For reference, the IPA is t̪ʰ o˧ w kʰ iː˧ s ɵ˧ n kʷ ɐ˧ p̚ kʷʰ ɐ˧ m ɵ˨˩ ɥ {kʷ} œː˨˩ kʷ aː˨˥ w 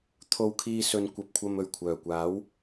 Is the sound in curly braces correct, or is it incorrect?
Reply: incorrect: kʷʰ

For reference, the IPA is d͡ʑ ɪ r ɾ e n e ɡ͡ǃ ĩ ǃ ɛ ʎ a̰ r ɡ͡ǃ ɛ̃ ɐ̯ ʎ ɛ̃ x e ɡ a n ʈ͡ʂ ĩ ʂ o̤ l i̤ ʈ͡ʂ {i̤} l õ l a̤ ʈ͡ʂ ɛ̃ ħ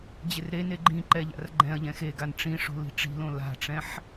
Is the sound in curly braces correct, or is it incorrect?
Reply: correct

